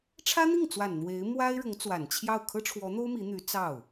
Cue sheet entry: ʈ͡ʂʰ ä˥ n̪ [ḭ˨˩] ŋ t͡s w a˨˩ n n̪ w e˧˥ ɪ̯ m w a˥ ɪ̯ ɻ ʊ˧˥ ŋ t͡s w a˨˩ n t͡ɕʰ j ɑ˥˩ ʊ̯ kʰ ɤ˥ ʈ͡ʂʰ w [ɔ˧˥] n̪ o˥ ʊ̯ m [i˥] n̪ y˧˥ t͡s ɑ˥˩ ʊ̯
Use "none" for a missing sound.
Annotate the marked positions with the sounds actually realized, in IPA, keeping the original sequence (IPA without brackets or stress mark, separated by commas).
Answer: i˥˩, ɔ˧˥, i˧˥